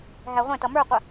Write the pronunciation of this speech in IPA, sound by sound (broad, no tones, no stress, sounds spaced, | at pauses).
ɦ æ ʁʷ ɛ̃ t ʌ m ə˞ qʷ ə